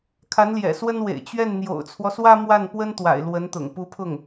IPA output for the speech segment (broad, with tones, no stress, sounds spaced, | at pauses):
kʰ a˧˥ n l j ɛ̰˨˩ s w ə˥ n w ḛ˨˩ ɪ̯ t͡ɕ ɥ ɛ˥˩ n n̪ j o̰˨˩ ʊ̯ t͡sʰ w ɔ˦ s w ä˥ m w a˥˩ n p w ə˥ n t̪ w a̰˨˩ ɪ̯ l w ə˧˥ n t̪ ʊ̰˨˩ ŋ p u˧˥ pʰ ʊ˥˩ ŋ